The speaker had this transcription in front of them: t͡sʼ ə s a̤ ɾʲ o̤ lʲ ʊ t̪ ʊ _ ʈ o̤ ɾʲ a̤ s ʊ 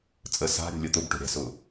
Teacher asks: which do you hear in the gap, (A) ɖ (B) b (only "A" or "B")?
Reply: B